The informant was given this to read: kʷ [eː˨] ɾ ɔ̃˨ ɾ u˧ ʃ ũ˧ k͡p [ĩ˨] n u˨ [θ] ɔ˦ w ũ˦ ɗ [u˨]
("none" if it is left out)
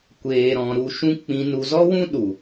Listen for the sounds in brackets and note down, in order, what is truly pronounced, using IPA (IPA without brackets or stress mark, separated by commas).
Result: eː˨, ĩ˨, z, u˨